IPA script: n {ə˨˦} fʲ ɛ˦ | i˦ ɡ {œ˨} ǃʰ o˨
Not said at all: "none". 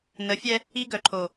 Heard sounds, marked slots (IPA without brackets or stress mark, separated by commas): ə˨˦, œ˨